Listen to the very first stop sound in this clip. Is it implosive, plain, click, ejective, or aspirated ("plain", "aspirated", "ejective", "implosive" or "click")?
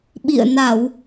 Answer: implosive